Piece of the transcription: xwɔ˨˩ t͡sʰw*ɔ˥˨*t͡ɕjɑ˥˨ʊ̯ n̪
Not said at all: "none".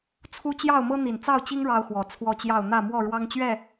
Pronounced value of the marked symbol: ɔ˥˨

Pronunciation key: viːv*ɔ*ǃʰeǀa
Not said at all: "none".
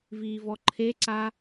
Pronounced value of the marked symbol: ɔ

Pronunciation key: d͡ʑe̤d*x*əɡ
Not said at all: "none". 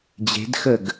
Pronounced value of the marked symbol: x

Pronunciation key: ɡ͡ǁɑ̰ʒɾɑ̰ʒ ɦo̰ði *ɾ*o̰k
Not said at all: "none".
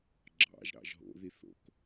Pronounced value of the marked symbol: θ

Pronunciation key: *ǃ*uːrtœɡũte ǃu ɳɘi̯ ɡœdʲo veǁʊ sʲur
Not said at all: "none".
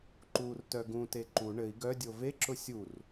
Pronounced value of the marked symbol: ǃ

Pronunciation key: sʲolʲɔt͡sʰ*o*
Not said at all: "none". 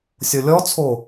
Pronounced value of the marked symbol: o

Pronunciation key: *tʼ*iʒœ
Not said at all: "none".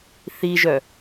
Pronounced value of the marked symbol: θ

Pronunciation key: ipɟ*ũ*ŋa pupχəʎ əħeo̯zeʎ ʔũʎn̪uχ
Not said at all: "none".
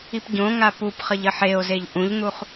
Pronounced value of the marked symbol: õ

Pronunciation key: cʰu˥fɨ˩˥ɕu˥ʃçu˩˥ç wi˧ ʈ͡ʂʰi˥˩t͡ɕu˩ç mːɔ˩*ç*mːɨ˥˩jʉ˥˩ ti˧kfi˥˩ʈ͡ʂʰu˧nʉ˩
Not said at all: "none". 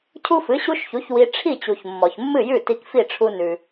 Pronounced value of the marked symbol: ç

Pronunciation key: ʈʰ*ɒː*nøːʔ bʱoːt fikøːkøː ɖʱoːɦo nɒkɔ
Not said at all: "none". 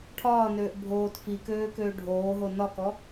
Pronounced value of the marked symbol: ɒː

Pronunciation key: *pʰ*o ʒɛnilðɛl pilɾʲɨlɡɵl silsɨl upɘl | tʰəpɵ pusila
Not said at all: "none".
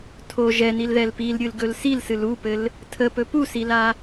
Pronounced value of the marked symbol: tʰ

